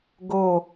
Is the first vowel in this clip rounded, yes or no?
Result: yes